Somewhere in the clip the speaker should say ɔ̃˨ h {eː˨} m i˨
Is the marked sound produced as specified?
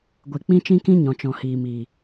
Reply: no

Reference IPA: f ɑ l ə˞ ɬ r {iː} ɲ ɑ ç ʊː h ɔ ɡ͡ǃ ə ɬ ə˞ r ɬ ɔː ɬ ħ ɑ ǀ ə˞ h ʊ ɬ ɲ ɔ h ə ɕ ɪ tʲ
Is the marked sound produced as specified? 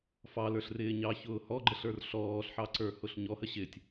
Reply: no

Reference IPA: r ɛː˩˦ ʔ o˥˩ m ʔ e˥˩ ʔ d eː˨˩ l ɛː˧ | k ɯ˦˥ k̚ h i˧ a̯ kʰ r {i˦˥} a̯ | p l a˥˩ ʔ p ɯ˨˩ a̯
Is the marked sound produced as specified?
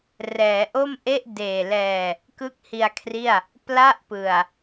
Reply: no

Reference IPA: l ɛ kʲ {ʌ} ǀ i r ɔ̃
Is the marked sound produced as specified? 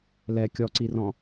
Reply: no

